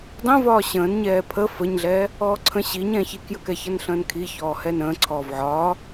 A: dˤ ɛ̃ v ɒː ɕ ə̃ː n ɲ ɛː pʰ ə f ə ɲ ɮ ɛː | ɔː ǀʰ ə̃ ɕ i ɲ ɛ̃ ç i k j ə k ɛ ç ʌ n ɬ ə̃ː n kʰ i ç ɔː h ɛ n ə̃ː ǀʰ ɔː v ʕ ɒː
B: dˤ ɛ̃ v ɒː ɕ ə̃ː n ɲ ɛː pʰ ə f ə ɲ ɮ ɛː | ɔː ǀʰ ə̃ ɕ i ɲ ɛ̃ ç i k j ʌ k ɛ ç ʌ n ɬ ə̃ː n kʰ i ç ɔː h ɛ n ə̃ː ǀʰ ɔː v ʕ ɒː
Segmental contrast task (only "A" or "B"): A